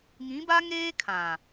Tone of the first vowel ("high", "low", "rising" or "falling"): rising